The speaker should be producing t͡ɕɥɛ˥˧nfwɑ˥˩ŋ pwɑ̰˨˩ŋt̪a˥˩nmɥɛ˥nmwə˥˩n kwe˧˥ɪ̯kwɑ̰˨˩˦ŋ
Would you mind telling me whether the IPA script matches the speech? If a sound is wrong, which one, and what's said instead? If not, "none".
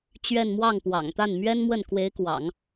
f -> m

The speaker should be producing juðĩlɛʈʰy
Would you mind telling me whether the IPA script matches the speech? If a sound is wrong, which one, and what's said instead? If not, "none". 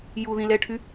none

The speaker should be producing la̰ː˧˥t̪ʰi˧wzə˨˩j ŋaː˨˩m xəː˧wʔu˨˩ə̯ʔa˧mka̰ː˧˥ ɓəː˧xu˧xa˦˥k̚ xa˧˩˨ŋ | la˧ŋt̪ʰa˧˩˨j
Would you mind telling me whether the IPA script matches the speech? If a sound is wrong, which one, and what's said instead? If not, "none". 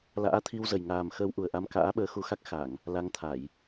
none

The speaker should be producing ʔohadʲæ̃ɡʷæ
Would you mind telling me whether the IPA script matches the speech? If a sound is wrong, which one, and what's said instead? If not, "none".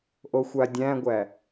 h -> xʷ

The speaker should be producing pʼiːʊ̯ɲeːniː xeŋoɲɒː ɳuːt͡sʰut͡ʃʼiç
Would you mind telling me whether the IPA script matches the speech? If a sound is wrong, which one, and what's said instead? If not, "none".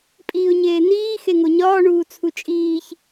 i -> iː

